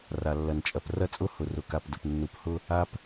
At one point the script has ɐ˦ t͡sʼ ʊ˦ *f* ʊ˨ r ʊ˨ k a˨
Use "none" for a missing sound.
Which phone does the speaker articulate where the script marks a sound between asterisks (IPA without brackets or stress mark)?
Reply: h